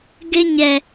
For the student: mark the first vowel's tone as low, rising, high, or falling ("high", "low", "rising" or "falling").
high